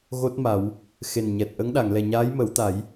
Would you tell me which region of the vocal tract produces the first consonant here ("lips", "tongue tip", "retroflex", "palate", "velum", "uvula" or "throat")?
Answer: velum